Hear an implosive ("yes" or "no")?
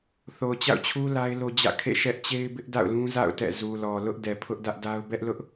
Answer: no